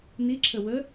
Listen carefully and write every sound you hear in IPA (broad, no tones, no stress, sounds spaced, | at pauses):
n i ǁʰ ə w ə